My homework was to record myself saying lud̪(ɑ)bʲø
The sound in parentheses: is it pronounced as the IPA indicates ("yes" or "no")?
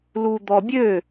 no